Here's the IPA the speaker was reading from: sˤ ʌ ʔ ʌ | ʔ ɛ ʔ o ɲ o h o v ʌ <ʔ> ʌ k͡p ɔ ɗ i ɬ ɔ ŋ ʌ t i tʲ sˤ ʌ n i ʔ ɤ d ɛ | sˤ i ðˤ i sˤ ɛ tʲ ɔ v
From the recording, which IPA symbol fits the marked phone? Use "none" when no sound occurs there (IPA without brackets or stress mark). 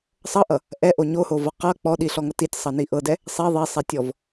q